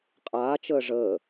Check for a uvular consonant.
present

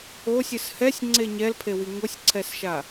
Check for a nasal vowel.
absent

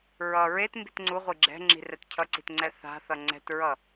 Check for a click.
present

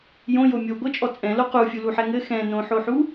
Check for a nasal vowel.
present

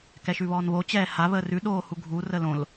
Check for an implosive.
present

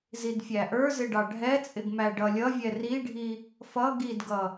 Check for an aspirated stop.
absent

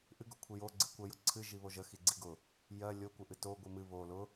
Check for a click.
present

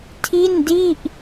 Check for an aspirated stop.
present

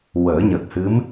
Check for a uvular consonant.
absent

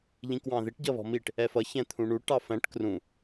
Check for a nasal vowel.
present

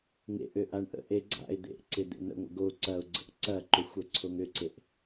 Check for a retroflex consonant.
present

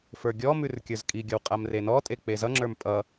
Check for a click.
present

